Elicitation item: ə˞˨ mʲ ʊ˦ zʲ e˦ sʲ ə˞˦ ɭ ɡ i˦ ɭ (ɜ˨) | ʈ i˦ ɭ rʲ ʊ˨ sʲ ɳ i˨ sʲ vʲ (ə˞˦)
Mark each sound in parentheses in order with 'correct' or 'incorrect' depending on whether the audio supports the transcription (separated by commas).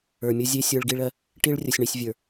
incorrect, incorrect